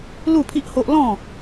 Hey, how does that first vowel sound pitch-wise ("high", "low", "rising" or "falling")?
falling